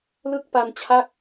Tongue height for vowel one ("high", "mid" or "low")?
high